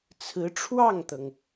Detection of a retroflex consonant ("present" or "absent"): present